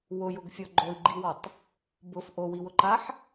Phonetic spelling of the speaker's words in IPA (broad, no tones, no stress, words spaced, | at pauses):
wʊjʊɡfʲɔ ɡ͡ǃoi̯ɡ͡ǃiwɔtˤ | bʊf ʔowiwʊǃaħ